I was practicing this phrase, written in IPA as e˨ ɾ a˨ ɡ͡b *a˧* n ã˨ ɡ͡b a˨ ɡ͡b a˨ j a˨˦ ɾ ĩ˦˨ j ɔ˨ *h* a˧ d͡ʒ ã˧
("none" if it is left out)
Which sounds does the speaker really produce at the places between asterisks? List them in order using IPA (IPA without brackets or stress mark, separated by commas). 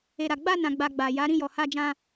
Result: a˧, h